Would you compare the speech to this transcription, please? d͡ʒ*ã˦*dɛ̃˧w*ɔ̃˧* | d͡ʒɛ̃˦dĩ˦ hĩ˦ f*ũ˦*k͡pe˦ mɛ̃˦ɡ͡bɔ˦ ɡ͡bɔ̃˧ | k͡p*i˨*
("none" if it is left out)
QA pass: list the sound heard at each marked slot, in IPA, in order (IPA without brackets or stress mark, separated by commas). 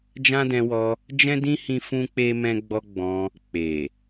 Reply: ã˦, ɔ˧, ũ˦, e˨